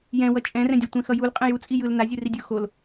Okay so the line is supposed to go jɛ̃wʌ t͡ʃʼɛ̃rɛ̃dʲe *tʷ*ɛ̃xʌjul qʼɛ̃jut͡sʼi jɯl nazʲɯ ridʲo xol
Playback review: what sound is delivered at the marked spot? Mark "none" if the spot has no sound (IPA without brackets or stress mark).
tʷ